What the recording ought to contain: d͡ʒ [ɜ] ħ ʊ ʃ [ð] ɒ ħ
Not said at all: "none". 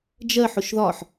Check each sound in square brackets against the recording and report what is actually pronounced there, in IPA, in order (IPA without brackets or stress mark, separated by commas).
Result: ɜ, ð